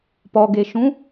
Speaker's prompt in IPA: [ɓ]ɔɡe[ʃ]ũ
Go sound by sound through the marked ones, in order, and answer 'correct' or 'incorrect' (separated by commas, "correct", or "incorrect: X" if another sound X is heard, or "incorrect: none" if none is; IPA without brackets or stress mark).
incorrect: p, correct